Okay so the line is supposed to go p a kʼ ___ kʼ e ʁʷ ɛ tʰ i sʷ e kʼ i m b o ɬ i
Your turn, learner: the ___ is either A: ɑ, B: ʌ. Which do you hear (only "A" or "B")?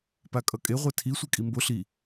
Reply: B